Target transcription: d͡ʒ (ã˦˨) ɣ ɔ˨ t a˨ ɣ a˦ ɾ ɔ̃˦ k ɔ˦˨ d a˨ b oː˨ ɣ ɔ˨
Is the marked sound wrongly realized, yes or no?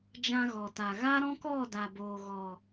yes